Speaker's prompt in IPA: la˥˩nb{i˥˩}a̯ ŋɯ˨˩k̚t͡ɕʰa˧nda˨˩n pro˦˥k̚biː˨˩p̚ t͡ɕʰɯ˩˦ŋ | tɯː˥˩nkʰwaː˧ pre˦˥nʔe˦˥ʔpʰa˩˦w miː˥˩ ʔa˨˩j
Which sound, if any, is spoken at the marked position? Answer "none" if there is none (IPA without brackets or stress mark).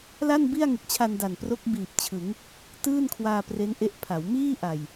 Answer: i˥˩